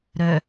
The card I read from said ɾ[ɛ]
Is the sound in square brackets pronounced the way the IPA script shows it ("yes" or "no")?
no